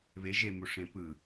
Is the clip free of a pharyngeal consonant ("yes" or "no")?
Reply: yes